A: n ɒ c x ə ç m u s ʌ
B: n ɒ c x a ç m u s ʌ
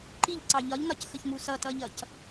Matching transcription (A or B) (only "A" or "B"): A